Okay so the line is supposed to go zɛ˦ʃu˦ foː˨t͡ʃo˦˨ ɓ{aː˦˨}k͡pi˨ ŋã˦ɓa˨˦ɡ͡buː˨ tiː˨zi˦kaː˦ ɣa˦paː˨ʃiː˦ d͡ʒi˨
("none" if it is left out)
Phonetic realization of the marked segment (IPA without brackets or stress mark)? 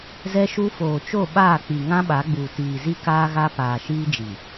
aː˦˨